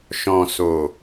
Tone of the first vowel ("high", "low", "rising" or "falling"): low